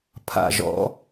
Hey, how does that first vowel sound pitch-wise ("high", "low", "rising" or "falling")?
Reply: low